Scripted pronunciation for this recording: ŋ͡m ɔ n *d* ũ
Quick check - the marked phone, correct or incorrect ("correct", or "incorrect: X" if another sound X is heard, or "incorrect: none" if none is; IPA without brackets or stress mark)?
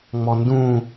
correct